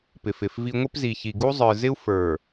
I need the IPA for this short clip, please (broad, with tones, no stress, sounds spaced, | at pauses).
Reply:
p ɪ˨ f ɪ˨ f v i˦ ŋʷ ɪ˦ p z i˨ ç i˨ ɡ u˦ zˤ ə˞˨ z ɪ˦ u̯ f ə˞˨